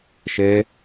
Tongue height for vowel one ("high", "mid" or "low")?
mid